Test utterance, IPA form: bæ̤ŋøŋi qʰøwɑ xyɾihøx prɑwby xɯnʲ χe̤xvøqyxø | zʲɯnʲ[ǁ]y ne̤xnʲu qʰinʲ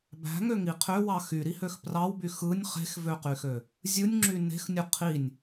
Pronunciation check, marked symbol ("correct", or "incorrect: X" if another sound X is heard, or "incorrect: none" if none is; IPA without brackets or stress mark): incorrect: ŋ͡ǁ